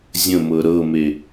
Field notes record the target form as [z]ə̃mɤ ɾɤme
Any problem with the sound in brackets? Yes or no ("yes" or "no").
yes